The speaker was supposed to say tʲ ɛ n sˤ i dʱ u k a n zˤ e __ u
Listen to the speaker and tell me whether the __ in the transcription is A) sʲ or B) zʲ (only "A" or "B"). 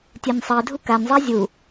B